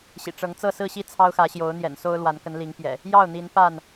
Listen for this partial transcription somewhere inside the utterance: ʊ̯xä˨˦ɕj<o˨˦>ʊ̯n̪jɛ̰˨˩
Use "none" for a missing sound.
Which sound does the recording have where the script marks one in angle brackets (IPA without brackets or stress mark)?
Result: o˨˦